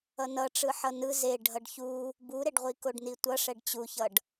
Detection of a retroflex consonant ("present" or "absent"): present